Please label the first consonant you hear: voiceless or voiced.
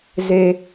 voiced